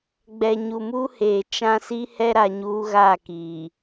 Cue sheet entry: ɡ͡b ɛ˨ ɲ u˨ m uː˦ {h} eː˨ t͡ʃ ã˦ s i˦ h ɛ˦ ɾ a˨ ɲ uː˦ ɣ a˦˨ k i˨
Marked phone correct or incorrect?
correct